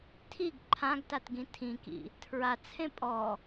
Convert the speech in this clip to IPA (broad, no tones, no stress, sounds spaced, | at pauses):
tʰ i ɡ ǃʰ ã ɡ t a t ɡ ĩ tʰ ĩ k ḭ | tʰ ɹ a t͡sʰ ẽ pʼ ɔ